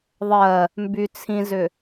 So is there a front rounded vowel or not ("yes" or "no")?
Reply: yes